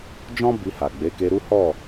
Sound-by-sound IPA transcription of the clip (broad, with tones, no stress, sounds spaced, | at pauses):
d͡ʒ ɔ̃˦ b i˧ h a˨ ɡ͡b e˨˦ k e˧ ɾ u˦ h ɔ˦˨